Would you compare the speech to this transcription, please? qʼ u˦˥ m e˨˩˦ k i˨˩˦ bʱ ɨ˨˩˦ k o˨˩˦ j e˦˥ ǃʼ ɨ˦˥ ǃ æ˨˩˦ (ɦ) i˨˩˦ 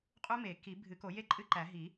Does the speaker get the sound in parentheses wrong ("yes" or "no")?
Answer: no